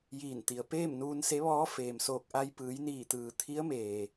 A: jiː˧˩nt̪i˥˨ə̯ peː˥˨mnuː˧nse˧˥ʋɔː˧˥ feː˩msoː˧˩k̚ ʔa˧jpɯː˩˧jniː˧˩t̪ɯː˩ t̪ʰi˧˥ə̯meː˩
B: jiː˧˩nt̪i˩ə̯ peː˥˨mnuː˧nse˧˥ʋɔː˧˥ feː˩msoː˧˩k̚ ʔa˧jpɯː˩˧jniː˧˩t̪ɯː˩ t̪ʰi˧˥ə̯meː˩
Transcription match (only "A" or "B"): B